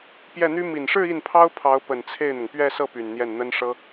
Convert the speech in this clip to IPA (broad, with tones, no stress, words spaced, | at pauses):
pjɛ˥˩n̪y˥ mi˨˩nʂɻ̩˥˧ i˥˩npʰɑ˥ʊ̯pʰɑ˧˥ʊ̯pə˨˩n t͡sʰe˥˩ɪ̯n̪ʊ˩ŋ pɥɛ˥˧sɤ˥˩ py˨˩nn̪jɛ˥˩nn̪ə˥n ʂɤ˥